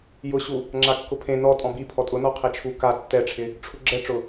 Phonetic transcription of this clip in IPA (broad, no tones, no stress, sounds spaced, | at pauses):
j ʊ ɕ u | ŋ͡ǁ a kː ʊ pʰ ẽ n ɔ tʼ ɔ̃ b i pʰ ɔ tʼ ʊ n ɔ qʰ e t͡ʃʰ u k a tː ɛ ʈ͡ʂʰ ɪ | ʈ͡ʂʰ u ɡ͡ǁ ɛ ʈ͡ʂ ʊ